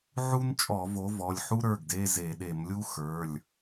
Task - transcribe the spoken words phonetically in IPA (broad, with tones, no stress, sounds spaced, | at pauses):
ʕ u˥ n t͡ʃʼ ɔ˧˩˧ v o˨˦ v ɔ˩˧˩ lʲ ħ u˥ ɾ ə˞˩˧˩ ɡ d e˧˥˧ z e˧˩˧ ɗ e˧˩˧ m lʲ u˥ x ə˞˩˧˩ lʲ